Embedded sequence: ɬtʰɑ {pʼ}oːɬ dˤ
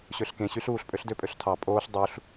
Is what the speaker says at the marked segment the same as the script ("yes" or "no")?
yes